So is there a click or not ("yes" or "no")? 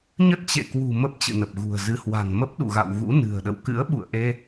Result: no